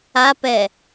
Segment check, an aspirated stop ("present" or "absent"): absent